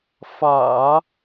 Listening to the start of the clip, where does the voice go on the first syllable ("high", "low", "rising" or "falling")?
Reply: low